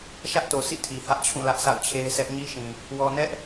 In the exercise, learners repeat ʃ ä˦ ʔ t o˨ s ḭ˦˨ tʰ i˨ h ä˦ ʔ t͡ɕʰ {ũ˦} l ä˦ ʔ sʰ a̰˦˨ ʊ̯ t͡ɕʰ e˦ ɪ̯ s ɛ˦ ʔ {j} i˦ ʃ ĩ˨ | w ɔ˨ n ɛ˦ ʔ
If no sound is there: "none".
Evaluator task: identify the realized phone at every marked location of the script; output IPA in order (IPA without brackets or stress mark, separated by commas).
ũ˦˨, ɲ